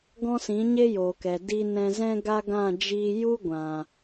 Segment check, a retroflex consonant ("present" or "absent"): absent